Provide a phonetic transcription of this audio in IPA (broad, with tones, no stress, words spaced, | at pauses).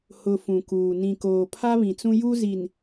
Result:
hʊ˨ fũ˨kuː˨ nĩ˨koː˨ pʰa˦βĩ˨t͡sũ˦ ju˦zi˨n